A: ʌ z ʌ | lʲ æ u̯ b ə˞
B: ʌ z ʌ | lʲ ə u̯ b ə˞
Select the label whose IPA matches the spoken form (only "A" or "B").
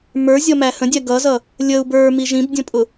B